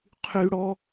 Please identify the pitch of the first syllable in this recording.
high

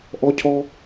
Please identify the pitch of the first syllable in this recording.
high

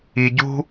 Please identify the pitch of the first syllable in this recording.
low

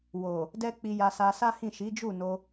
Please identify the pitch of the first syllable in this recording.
low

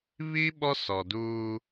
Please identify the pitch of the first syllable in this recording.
high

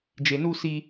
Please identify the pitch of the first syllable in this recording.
low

